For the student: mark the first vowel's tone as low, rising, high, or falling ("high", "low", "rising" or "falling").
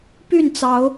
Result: falling